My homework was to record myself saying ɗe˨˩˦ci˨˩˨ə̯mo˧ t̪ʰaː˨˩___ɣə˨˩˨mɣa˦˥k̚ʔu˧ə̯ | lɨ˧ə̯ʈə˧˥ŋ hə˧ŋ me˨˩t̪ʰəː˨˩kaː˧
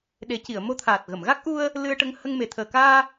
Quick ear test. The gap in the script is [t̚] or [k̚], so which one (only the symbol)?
t̚